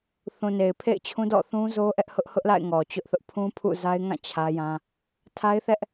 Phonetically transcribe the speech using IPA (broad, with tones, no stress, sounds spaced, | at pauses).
θ ũ˨ n e˨ ɪ̯ pʰ ḛ˦˨ ɪ̯ t͡ɕʰ ũ˦ d ɔ̰˦˨ θ ũ˦ z o˦ ʔ ɛ˦ ʔ h ʊ˦ ʔ h ʊ˦ ʔ l a̰˦˨ ɪ̯ ŋ ɔ˨ t͡ɕ ʊ˦ ʔ θ ʊ˦ ʔ pʰ ũ˦ pʰ ṵ˦˨ z a˦ ɪ̯ ŋ ã˦˨ t͡ɕʰ ä˦ j ã˦ | tʰ a˦ ɪ̯ θ ɛ˦ ʔ